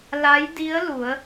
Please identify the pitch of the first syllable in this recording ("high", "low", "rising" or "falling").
rising